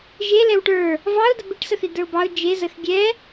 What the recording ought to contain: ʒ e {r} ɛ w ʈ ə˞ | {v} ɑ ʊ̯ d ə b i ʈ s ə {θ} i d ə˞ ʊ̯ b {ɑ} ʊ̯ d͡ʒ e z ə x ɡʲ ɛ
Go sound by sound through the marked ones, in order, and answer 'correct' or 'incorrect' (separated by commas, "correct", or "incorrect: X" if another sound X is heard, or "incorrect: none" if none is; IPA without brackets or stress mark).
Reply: incorrect: l, correct, correct, correct